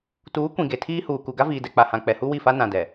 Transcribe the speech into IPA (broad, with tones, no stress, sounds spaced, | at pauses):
t uː˨˦ kʷ ĩ˨ ɡ e˨ tʰ iː˦ h uː˨ k u˨ ɡ a˦ v iː˨ d ɛ˨ k͡p a˨ h ã˨ k͡p ɛ˨ h u˦ w i˦˨ f a˦ n ã˨ d ɛ˨